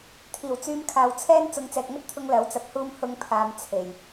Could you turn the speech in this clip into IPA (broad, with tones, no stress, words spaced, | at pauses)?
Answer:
t̪ʰiː˨˩wt͡syː˧m kʰaː˨wt͡sʰɛː˥n t͡sʊ˨˧ŋt͡sɛː˨k̚ŋɐ˥t̚t̪ʰʊ˧ŋ lɐ˨˥wt͡sɐ˧p̚huː˥m hʊ˧ŋpʰaː˨m t͡sʰe˨˩j